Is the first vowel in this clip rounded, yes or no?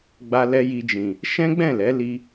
no